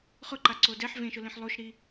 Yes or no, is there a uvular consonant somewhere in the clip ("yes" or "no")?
yes